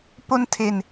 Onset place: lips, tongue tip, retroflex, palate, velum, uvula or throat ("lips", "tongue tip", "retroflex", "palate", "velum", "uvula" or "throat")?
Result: lips